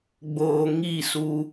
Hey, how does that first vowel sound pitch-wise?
low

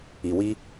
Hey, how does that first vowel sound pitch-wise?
low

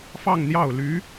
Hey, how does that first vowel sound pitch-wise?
falling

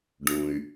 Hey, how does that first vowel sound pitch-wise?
low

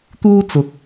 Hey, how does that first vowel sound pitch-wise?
high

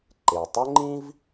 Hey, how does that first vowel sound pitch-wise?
low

